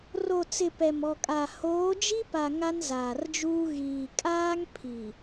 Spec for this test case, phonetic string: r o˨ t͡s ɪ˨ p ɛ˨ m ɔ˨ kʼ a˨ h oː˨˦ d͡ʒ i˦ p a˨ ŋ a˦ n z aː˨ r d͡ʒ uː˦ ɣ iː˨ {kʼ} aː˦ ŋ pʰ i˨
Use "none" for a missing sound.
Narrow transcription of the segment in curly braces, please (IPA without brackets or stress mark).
kʼ